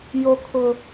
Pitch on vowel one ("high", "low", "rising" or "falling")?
high